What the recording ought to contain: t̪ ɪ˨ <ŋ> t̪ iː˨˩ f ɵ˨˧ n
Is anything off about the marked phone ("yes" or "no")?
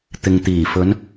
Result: no